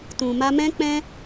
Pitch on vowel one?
low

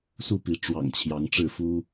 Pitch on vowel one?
falling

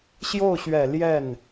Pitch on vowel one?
falling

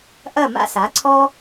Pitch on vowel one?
falling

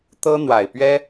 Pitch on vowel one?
high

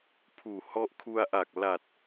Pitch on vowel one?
low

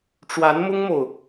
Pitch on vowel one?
rising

